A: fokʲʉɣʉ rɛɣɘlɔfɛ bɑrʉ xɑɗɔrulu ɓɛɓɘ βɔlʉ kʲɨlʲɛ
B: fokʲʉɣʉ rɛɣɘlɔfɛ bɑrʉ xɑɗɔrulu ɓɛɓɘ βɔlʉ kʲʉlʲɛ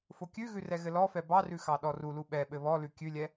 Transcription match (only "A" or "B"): B